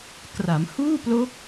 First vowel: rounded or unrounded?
unrounded